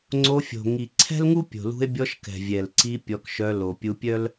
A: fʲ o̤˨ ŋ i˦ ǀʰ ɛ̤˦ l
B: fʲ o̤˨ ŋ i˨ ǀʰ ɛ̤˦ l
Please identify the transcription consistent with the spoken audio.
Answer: B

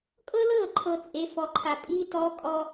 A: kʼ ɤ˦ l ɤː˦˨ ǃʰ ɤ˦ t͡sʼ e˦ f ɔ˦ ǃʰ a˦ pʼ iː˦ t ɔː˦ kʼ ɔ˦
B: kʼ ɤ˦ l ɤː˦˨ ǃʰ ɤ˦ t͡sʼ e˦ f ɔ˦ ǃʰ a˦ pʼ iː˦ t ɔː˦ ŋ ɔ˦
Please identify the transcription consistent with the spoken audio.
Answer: A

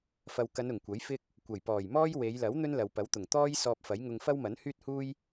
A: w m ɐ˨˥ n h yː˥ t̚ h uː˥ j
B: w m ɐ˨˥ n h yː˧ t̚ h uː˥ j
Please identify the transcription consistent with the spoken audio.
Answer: A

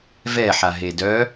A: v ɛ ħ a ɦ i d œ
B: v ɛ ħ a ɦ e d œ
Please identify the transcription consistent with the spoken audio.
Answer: B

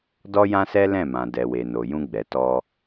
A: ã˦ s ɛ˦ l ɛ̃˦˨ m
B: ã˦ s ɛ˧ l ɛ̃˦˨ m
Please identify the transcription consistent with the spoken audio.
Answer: A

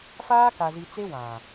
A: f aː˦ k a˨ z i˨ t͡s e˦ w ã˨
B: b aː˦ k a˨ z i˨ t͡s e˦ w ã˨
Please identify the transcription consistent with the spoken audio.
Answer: A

